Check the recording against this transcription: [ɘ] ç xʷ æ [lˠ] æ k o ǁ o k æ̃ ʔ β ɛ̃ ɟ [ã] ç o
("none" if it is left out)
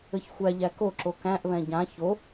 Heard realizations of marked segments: ɘ, ʎ, ã

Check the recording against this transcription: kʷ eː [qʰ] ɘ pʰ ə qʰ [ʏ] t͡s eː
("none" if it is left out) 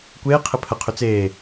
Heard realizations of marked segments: qʰ, ʏ

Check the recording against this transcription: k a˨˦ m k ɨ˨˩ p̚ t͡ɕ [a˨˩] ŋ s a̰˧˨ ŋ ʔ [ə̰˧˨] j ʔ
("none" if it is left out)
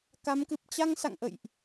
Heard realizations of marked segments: a˧, ə̰˧˨

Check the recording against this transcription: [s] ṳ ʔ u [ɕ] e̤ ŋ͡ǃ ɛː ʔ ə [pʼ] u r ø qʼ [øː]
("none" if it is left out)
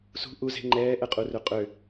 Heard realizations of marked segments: s, z, qʼ, ø

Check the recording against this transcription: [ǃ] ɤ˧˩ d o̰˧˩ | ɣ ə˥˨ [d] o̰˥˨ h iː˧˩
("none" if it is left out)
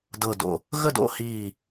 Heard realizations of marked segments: d, d

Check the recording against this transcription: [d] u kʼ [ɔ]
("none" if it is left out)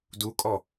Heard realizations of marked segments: d, ɔ

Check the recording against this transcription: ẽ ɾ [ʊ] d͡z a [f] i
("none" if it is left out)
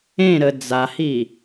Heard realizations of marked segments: ə, h

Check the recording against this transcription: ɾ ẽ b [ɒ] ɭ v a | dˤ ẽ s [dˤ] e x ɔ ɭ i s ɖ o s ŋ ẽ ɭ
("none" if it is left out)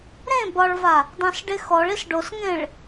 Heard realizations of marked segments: ɒ, ɖ

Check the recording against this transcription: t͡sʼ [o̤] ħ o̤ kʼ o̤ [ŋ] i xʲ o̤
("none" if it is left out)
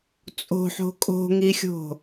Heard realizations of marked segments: o̤, ŋ

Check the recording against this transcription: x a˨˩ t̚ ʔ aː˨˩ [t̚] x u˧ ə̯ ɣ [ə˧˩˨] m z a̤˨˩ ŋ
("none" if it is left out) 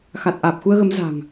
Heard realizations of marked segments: p̚, ə˨˦

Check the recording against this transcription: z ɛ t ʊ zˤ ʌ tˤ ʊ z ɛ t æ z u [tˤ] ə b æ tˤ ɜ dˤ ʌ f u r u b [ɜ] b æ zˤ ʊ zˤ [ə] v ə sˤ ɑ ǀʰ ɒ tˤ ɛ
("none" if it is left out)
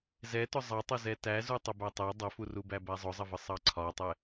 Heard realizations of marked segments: tˤ, æ, ə

